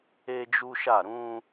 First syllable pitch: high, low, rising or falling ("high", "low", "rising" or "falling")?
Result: high